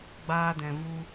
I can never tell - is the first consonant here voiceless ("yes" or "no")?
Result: no